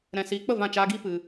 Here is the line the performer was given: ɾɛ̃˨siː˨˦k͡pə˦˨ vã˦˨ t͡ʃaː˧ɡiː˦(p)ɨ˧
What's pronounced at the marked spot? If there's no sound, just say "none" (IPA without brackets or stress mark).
p